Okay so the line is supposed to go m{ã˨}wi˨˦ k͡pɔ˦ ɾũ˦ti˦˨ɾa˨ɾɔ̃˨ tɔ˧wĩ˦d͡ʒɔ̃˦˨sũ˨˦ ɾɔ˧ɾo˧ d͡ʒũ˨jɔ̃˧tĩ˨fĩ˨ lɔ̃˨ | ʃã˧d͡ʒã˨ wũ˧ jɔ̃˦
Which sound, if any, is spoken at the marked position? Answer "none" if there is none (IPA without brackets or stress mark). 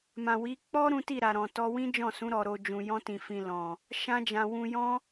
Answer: ã˨